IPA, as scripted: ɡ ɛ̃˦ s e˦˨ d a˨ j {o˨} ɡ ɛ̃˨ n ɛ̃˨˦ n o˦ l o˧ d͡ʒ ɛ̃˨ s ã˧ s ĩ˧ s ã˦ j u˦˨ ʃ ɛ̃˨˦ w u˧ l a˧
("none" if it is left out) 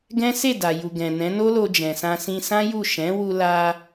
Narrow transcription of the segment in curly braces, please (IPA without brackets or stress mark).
u˨